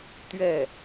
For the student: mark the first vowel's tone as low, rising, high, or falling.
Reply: falling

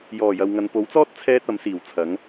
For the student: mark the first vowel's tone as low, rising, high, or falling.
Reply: low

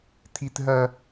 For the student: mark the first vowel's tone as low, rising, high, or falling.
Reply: high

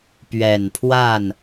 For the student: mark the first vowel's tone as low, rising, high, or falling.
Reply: low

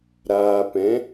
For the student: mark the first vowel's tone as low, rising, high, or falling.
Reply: low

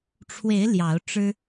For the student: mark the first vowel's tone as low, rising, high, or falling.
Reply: rising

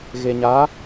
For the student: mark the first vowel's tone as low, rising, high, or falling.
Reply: low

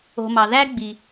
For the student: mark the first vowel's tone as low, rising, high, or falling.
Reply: low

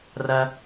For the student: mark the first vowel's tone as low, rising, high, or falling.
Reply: high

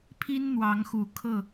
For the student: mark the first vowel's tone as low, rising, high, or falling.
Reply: high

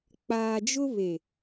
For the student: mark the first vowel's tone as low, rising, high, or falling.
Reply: low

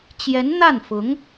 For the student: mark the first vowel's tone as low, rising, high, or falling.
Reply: rising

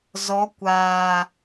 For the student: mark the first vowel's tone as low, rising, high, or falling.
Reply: rising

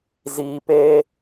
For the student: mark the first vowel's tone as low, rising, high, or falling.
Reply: low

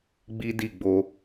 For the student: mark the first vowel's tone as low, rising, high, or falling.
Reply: high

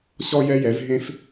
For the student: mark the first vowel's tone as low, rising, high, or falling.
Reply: high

